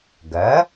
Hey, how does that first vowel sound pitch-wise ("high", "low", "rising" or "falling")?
rising